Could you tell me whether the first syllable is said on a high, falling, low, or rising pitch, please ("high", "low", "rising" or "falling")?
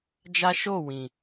high